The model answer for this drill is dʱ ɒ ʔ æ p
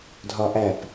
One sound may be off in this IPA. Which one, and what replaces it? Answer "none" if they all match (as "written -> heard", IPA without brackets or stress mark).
none